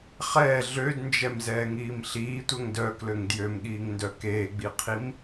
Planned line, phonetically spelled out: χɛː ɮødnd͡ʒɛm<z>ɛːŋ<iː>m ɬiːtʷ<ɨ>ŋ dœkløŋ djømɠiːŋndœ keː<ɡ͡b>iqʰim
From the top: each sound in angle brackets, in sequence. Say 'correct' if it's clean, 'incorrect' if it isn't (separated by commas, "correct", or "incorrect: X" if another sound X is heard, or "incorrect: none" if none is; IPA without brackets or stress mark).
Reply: correct, correct, incorrect: ɛ, correct